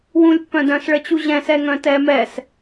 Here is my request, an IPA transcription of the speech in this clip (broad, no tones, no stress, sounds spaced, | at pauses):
w ũ lʲ pː œ̃ d œ̃ s ɭ ə t͡ɕ u ʑ ɛ̃ s ɛ ŋ œ̃ t ɛː m ɛ s